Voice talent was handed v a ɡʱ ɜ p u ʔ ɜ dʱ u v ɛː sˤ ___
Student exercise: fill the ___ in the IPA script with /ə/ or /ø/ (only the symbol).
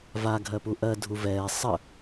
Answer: ə